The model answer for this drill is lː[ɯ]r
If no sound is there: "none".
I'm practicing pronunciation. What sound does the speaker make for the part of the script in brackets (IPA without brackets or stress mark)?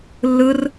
ɯ